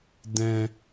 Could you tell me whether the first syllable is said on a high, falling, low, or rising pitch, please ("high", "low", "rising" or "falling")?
low